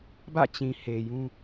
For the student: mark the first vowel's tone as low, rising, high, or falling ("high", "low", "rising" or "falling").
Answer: falling